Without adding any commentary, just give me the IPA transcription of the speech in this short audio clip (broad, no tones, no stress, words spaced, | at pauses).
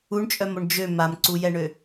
uɳt͡ʃʼœmoɳ d͡ʒø mamǀujɛɳø